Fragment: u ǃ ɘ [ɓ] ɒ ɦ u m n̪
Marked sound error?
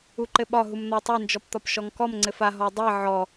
no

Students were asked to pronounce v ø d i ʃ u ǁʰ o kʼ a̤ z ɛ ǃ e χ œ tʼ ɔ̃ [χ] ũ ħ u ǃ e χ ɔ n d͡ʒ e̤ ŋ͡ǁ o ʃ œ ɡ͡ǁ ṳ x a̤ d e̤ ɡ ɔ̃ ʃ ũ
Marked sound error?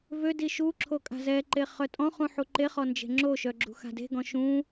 no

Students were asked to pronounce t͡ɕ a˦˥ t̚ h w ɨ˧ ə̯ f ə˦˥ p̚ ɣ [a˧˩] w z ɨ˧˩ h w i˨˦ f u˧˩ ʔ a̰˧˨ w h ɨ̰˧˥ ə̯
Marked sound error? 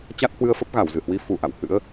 no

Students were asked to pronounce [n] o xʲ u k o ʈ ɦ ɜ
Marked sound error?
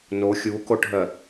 no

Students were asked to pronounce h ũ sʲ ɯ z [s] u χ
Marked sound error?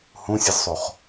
yes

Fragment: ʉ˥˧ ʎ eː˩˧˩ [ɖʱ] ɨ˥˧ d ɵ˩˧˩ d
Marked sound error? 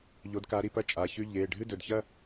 no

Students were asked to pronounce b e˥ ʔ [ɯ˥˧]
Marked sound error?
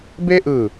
yes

